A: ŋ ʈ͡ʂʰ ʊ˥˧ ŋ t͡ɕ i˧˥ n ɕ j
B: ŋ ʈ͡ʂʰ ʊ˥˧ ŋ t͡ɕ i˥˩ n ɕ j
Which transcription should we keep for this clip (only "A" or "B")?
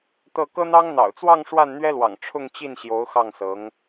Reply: B